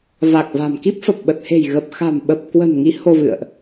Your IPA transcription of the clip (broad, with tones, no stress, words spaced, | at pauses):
va˨˩k̚va̤˨˩mki˦˥p̚fə˨˩p̚ ɓə˨˩t̚he̤˨˩j ɣə˨˩p̚xa̤˨˩mɓə˨˩p̚kwə̤˨˩n ŋi˨˦ ho˧vɨ̰˧˨ə̯ʔ